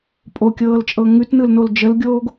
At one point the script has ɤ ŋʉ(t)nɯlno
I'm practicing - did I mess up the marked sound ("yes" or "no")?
no